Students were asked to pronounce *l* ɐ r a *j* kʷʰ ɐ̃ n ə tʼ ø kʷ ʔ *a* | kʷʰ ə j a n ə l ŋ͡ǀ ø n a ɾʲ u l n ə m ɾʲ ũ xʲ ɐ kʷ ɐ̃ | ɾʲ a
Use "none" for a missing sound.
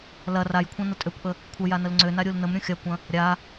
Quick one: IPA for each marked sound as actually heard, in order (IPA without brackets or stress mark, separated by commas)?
l, j, ə